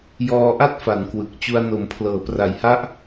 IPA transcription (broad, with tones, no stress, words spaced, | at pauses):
jɔː˧ʔa˥˩t̚ fa˩˦nkwɯ˨˩k̚ t͡ɕu˧a̯no˩˦m pʰlɤː˩˦pra˨˩jha˦˥ʔ